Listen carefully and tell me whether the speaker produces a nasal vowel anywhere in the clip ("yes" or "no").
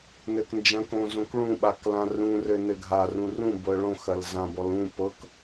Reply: yes